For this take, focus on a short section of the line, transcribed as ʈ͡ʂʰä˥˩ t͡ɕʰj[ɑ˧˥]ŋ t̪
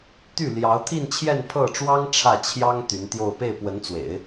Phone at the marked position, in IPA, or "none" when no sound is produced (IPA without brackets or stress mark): ɑ˥